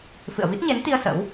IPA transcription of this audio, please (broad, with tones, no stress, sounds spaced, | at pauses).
f ɨ̰˧˨ ə̯ v i˦˥ t̚ ɲ e˨˦ n t̪ i˧ ə̯ s ə̰˧˥ w